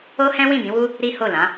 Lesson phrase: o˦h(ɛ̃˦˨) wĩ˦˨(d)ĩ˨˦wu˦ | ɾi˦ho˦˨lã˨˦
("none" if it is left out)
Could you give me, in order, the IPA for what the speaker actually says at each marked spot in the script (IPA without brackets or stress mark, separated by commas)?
ɛ̃˦, d